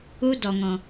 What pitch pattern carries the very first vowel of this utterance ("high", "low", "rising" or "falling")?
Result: high